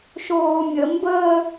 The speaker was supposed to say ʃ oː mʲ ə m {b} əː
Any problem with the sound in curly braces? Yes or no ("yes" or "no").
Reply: no